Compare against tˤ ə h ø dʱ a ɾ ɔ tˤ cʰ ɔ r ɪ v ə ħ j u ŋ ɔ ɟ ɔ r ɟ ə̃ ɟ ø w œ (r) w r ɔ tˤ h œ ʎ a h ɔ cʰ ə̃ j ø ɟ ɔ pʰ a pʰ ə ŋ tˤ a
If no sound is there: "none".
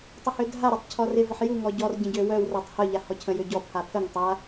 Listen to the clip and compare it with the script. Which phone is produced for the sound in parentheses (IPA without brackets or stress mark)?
none